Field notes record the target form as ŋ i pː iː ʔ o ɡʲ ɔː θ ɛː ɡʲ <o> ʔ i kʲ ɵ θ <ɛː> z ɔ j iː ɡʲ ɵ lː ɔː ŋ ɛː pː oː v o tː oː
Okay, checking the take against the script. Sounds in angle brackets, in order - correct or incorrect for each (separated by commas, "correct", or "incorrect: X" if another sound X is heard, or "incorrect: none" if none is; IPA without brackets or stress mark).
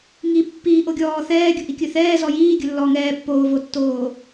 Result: incorrect: ɵ, correct